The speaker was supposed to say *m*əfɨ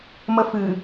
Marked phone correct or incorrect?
correct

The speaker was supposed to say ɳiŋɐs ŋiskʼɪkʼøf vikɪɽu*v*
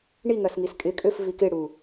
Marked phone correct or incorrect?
incorrect: none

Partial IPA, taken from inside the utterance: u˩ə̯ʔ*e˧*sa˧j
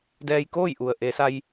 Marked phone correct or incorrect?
incorrect: e˩˧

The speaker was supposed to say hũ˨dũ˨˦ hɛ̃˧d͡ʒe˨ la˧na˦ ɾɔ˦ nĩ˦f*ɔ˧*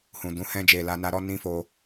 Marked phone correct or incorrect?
incorrect: o˧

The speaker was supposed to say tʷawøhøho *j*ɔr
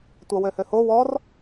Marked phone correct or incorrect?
incorrect: w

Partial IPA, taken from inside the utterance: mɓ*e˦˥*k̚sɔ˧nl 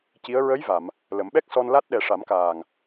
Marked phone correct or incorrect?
incorrect: ɛ˦˥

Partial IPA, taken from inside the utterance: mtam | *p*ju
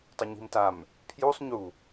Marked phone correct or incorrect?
incorrect: pʰ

